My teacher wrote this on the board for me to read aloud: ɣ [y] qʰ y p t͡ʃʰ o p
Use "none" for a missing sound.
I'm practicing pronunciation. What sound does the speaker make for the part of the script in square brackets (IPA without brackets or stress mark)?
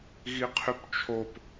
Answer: i